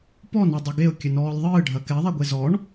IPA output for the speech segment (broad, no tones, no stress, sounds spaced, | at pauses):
p ɔ n a dˤ ɐ ɡ e ʊ̯ kʲ ɘ n ɔː lʲ ðˤ ɨː ɖʱ ɐ k ɛ ðˤ ɛ ɡʷ e z ɔ ɳ